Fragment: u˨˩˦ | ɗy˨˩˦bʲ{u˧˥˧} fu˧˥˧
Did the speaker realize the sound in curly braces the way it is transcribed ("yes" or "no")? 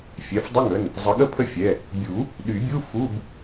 yes